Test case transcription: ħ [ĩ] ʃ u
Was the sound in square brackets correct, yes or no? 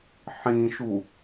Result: yes